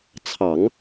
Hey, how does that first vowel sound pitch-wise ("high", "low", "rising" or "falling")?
low